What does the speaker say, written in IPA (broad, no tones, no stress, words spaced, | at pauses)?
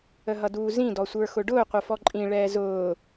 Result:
əɦʌduːzĩ dɔsʷə˞xʊɖʊː qʷʌfɔǃʼĩ ɭɛːzʊː